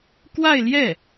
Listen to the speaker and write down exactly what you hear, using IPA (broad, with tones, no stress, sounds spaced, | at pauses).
k w a˥˧ ɪ̯ l j ɛ˥˩